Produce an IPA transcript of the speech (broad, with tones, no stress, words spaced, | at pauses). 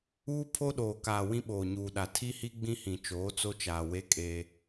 uː˦ pʰo˦ɗoː˨kaː˨ wĩ˦ɓoː˨ɲuː˨ɗa˨ tʰi˦hi˦ ɡ͡bĩ˦hĩ˨ t͡ʃoː˨˦t͡so˦t͡ʃaː˨we˦ kʼe˦